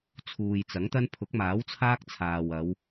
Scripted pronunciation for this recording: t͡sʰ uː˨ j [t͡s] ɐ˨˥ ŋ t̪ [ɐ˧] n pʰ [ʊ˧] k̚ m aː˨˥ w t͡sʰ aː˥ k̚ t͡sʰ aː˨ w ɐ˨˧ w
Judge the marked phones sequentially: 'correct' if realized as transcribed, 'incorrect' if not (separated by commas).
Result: correct, incorrect, incorrect